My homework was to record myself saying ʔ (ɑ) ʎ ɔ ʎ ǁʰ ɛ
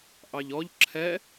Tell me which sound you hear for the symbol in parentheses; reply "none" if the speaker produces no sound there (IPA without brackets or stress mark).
ɑ